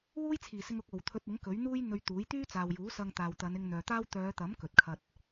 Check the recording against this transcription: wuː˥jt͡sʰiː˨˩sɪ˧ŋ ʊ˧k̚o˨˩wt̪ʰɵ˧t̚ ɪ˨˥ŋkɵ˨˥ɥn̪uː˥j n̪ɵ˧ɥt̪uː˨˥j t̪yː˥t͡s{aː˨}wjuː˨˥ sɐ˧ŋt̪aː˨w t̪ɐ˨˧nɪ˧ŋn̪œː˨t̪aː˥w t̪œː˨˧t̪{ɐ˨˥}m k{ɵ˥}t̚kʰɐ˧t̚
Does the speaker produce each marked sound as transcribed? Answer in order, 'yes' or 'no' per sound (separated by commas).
yes, yes, no